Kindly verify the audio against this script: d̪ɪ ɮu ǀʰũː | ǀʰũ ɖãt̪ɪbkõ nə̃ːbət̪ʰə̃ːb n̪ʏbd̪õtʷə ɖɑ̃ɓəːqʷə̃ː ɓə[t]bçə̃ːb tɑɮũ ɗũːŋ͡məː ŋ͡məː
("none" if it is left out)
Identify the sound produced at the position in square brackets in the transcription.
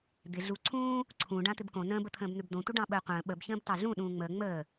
none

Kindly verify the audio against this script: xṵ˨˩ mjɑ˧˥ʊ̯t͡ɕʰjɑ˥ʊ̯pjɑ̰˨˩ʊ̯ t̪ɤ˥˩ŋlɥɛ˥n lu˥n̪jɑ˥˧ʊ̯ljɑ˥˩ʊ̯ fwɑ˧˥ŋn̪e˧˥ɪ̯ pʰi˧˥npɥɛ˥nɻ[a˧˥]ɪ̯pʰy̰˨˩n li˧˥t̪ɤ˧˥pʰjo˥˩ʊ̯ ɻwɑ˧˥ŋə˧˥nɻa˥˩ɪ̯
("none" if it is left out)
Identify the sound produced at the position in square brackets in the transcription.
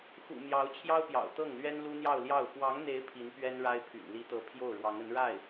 a˥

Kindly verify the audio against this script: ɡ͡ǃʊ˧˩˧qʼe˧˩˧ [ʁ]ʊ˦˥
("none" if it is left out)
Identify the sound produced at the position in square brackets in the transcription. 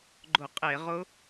ʁ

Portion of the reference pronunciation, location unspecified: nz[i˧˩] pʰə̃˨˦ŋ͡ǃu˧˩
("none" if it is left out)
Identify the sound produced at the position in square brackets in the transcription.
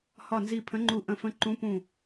i˧˩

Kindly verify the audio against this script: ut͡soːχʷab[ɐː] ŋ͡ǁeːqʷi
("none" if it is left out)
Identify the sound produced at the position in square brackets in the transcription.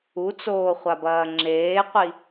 ɐː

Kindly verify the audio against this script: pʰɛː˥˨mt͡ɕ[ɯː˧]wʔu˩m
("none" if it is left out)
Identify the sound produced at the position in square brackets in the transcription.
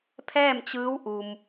ɯː˧˥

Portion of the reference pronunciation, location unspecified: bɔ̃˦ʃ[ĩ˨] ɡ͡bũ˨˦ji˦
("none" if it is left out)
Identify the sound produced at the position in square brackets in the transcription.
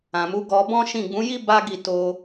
ĩ˦˨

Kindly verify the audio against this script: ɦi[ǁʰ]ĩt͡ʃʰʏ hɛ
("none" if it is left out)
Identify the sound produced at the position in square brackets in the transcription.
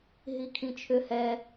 kʰ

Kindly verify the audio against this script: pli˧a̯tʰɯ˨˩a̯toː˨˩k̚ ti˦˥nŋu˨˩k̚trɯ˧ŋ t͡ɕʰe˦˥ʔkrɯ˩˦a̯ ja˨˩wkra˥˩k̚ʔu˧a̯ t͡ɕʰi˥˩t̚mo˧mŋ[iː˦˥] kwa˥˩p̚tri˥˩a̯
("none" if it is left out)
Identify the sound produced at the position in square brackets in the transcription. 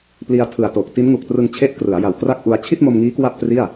iː˦˥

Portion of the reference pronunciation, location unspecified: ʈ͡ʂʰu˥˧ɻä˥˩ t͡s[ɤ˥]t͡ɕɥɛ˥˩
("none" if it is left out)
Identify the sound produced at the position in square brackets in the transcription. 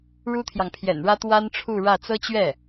ɤ˥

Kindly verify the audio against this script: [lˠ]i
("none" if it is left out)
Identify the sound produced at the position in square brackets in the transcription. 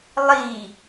lˠ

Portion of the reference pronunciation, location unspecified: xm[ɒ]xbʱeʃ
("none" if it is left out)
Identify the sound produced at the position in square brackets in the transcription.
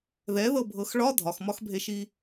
ɒ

